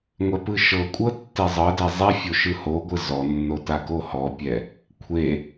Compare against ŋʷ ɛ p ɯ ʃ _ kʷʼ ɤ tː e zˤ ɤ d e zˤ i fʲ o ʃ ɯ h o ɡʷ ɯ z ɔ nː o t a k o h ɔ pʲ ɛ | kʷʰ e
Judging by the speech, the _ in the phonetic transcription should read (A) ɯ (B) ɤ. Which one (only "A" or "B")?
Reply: B